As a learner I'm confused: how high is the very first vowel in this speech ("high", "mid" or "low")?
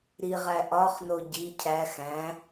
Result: high